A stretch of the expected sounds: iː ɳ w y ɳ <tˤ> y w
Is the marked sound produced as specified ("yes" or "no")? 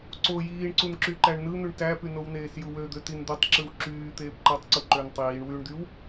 no